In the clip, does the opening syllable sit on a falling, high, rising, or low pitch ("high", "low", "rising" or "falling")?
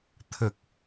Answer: low